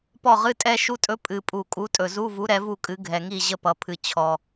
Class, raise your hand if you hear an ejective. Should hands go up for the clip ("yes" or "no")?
yes